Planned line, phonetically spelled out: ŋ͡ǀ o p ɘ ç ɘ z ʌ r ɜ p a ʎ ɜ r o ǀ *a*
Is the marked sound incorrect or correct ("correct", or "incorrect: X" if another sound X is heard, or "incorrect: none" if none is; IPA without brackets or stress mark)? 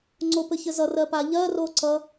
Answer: incorrect: ʌ